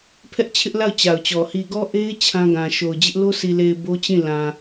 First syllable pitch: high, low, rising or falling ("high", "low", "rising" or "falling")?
high